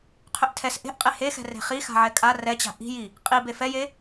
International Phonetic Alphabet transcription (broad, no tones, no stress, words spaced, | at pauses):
qʰʏʔtʰɛs ʔe̤ʔqʼe hexɛ̤ re̤χi xa̤ʕɛkʼa rɛt͡ɕa̤ ʔi̤ji | qʼi befɛje